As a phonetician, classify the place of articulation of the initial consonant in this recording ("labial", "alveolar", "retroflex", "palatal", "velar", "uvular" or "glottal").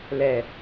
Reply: alveolar